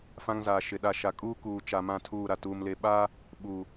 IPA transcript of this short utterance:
fã˦ŋzaː˨ʃɪ˨ɗa˦˨ ʃa˨kʼuː˦kuː˨t͡ʃa˨ mã˦˨tʰuː˦˨ ɾa˨ tuː˨m le˨ɓaː˦ | ɓuː˨

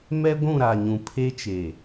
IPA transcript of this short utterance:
mɛ˦ɡʷũ˦˨ɾa˨ɲũ˨ pʰe˦t͡ʃe˨

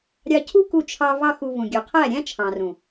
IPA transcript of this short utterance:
ɾʲɑ˧cʰu˦ku˧t͡ʃʰɑ˧ vɑ˦xu˧vũ˨ɡʲʉ˨ qʰæ˦˨ɾʲæ̃˦ t͡ʃʰɑ̃˨rũ˨

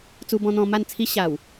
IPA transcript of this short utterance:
t͡su˧bɔ̃˧n̪ɔ̃˧ ma˥˧nt͡sʰi˦ɕa˨˩w

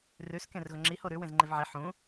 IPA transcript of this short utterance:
rʉs kẽrɣʊŋ͡ǁiho ɾʉ wẽzŋ͡ǃevʕi ħũ

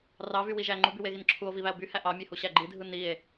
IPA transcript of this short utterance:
rɑvywiʒæ ŋ͡ǃubyweɣin ǁʰuo̯viβæo̯ byhæ ʔɑmʲehuɕæ ɡ͡ǃidʱɯ nie̯

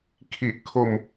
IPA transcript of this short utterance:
kʰi˨˩ʔkʰo˧m

